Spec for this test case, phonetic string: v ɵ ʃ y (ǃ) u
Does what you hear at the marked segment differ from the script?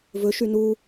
yes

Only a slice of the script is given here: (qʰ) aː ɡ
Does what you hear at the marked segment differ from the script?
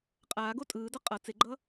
yes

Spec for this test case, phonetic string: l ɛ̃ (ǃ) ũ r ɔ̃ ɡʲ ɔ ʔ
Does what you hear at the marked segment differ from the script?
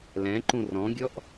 no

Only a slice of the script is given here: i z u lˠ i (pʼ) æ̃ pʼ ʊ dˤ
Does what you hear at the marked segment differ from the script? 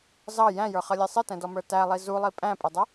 no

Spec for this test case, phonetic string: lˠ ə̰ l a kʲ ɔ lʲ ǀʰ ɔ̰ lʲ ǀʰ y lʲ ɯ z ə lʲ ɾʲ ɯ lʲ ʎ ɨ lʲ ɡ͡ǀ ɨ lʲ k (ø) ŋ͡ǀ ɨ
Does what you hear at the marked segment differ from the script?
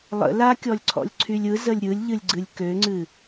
no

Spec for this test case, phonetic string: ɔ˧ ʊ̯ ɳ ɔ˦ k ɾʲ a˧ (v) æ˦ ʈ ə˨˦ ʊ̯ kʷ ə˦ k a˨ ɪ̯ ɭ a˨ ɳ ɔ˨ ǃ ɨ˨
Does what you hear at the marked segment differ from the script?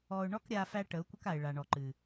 yes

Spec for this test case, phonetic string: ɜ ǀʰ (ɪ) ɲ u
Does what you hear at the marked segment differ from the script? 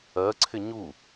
no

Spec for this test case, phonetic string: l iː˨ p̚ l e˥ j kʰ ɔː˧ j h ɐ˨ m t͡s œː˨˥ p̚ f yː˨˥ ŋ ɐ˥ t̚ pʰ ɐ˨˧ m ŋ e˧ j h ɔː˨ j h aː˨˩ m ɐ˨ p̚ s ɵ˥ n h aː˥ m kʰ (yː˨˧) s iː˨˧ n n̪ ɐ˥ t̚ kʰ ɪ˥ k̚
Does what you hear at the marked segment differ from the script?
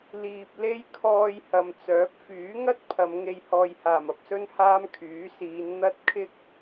yes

